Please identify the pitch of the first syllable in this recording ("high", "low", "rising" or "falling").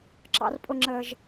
high